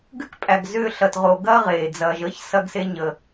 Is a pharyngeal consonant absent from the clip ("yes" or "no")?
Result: yes